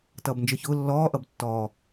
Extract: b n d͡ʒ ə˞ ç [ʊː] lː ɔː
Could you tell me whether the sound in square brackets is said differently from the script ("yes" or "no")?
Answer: no